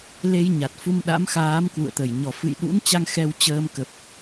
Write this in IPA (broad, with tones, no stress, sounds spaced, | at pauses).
l e˧ j ɲ a˨˩ t̚ f u˧ m ɗ a̰˧˥ m x aː˨˦ m k w ṵ˧˨ ə̯ t̪ ə˧˩ j ɲ ɔ˧˩ f ɨ̰˧˨ j ɗ ṵ˧˥ n t͡ɕ a˧ ŋ x ɛ˧ w t͡ɕ əː˧ m k ə˨˩ p̚